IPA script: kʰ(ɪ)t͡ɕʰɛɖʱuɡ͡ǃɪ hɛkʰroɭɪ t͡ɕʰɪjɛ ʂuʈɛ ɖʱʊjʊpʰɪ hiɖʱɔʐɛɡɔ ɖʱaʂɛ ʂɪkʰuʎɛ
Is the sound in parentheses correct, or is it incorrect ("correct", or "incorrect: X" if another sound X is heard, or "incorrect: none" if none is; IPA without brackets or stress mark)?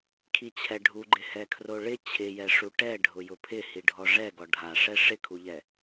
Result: incorrect: i